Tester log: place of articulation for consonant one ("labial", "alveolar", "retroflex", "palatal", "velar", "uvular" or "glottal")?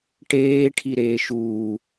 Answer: retroflex